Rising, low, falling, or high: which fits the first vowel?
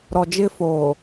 low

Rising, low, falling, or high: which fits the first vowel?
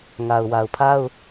low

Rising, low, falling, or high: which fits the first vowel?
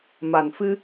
low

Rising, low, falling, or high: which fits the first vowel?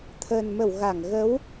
low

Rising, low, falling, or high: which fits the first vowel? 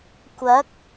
rising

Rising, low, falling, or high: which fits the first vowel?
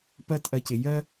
falling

